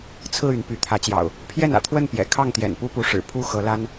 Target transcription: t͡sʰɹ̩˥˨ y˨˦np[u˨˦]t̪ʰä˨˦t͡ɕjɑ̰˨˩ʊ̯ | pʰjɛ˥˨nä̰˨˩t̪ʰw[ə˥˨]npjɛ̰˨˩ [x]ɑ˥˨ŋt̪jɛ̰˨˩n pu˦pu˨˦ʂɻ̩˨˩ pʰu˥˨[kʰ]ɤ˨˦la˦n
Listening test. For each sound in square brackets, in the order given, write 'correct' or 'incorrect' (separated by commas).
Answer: incorrect, correct, incorrect, incorrect